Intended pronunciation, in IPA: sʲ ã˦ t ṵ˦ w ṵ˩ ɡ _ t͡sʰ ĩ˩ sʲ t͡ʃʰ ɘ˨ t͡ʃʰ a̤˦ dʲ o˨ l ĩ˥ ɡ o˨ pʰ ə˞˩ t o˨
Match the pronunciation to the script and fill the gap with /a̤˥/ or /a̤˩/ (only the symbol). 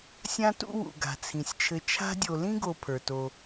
a̤˩